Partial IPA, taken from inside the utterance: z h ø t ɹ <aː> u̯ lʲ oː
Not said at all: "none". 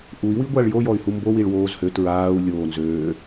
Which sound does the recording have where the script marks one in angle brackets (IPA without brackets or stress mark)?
aː